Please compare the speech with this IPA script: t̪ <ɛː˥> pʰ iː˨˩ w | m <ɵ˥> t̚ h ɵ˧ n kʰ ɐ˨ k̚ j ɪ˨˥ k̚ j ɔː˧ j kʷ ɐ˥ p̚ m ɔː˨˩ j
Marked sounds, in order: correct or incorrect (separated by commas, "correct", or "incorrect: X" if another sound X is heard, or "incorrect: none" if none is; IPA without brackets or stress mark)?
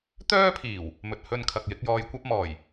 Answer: incorrect: œː˥, incorrect: ɵ˨